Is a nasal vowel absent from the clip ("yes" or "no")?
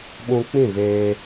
no